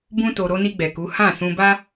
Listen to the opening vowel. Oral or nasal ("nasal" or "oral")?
nasal